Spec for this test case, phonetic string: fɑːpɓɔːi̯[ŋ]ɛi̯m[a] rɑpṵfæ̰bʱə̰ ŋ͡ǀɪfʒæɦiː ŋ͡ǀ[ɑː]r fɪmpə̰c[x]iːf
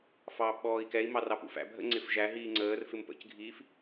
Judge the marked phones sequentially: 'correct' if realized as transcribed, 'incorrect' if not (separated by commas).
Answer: incorrect, incorrect, incorrect, incorrect